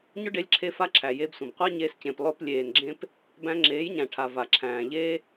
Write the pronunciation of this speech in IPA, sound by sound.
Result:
ɲʊ˦ɖe˧lʲǁʰe˧ fa˦ǁʰæ˨je˧bsʷẽ˨b qʷa˦ ɲeː˧scẽ˨plˠʊː˧p lʲeː˨nɡ͡ǁẽ˧p | bæ̃˧ ŋ͡ǁeː˨˦jɲæ̃˨ʈʰa˨ va˨ ǁʰæ̃ː˨ʎeː˦

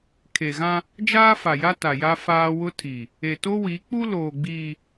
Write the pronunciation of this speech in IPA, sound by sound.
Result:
kʰe˨ɣã˦ | d͡ʒaː˦fa˨ja˦ ta˨ja˦faː˦ wʊ˦tʰi˨ | e˨to˦wi˨˦ k͡pu˦loː˨ ɡ͡biː˨

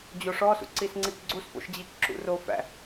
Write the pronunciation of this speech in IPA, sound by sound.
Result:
d͡ʑoʂɔsṵ ǀisŋ͡ǀikɡ͡ǀusfo̰ʃ d͡ʑikǁṵrofæ̰

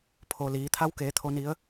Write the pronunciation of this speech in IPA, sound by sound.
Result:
pʰo˩liː˩˧ t̪ʰa˧˥wkeː˩˧ t̪ʰo˩ni˩˧ə̯

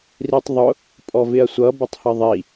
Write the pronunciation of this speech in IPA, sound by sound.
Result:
ritˤðˤʊ | pʼɔvɪɐ̯sʷʌ bətˤhʌðˤi

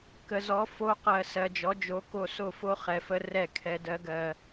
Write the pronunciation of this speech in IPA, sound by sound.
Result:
kə˨zɔ˨˦ fo˧ qɜ˨sɜ˨d͡ʒɔ˨˦d͡ʒo˨˦ ko˧so˦˨fo˦ χɛ˨fə˧ rɛ˦˨kʰɛ˧dɜ˦ɡɜ˧

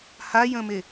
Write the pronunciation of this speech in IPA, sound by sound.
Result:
hajə̃me

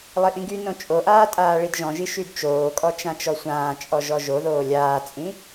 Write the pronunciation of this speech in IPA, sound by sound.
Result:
lˠiʔĩɡynõ t͡ʃʼoʔaː tʼaːɭidʒɔ̃ʒi ʃydt͡ʃoːkʼɔ t͡ʃãt͡ʃɔsʷãːt͡ʃʼɔ ʒɔʒoðoː lʲaːt͡sʼĩ

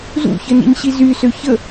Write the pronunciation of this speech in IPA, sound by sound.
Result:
zṵçənḭɲɕi zysø çə

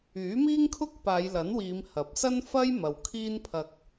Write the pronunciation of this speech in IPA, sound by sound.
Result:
yː˨˥miː˥ŋkʰʊ˥k̚paː˨˧j lɐ˨˥nwiː˨˧m hɐ˨˥p̚ sɐ˥nfɐ˥j mɐ˨wkʰiː˥npʰɐ˧k̚

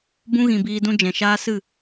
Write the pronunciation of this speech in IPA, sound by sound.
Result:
bũ˧ɣĩ˨ biː˧dũ˦d͡ʒɛ̃˨ ʃaː˧ sɨ˦˨

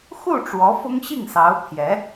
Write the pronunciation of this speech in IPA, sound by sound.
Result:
xu˥˩ ʈ͡ʂwɔ˧˥fʊ˥ŋ ɕi˥˩ŋsɑ˧˥ʊ̯pʰjɛ˧˥

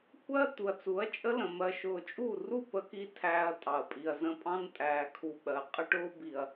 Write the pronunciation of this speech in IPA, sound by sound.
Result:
kʷɜ˦ t̪u˨ɐ̯t͡su˨˦ɐ̯t͡ʃʼə˦ lə̃˨ mɜ˨ʃʊː˨t͡ʃʼu˦˨ru˦˨ pə˦ki˦ tʰæː˦ɐ̯tʼɑ˨ɐ̯pʼi˨ɐ̯zə̃˦ pʼɑ̃˦ntʼæː˨kʰu˨ ɓɜ˨ qʼə˦ʈʊː˦ bi˨ɐ̯

